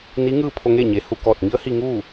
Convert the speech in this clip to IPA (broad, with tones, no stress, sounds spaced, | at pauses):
n i˧˥ ŋ ɯː˥˨ pʰ o˧ ŋ e˥˨ ɲ e˩ h u˧˩ k ɔː˧˩ t̚ ŋ i˧˥ ə̯ h i˧ ŋ uː˥˨